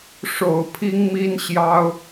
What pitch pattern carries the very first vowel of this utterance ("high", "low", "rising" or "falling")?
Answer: low